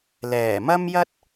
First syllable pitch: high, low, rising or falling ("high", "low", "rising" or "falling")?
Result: low